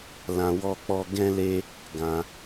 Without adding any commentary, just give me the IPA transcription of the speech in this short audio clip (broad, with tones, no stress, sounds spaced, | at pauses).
l ã˧ w ɔ˦ k͡p ɔ˦ ɡ ɛ̃˦ l e˦ | ɡ ã˧